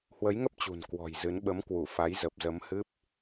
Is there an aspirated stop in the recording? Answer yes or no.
no